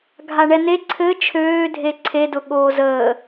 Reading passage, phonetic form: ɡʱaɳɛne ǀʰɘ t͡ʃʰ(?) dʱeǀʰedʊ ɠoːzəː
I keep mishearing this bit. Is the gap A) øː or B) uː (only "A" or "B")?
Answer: A